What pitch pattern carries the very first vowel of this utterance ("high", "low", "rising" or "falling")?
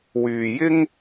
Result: low